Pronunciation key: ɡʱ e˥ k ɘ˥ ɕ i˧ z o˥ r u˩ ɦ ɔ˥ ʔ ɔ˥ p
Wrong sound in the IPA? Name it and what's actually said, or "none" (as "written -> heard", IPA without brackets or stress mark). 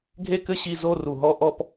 none